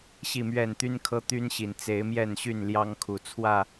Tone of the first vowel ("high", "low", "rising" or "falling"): falling